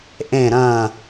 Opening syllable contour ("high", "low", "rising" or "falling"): falling